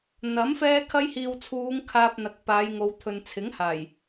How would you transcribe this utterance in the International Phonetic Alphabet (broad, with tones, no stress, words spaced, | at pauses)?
n̪ɐ˨˥m fɛː˥kʰɐ˥j hiː˨wt͡sʰuː˨˧ŋ kʰaː˧p̚n̪ɐ˨k̚ paː˨˧jŋo˨˧wt̪ʰɵ˨n t͡sʰɪ˨˥ŋhaː˨˩j